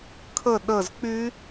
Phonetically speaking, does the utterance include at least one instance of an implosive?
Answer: yes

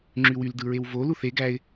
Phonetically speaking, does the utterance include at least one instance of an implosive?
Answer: no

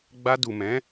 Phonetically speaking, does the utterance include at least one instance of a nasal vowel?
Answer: yes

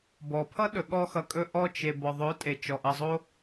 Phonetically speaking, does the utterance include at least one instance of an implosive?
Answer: yes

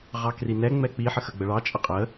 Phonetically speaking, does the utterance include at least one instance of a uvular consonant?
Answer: yes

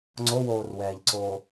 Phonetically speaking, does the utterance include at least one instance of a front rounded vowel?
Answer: no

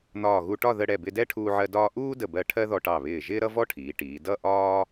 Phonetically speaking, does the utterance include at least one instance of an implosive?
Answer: no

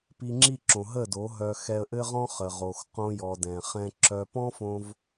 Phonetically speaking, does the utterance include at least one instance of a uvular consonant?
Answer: yes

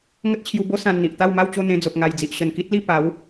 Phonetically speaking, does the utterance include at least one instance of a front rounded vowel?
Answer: no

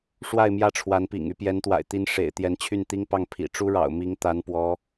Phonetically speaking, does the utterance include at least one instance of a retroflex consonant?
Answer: yes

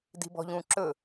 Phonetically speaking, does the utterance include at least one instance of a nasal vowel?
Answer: yes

